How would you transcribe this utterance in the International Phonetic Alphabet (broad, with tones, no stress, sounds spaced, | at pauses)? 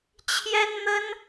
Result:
t͡ɕʰ j ɛ˥ n n̪ ə˥ n